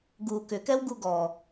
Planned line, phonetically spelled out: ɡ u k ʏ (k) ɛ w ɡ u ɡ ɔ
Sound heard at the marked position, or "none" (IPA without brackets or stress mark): k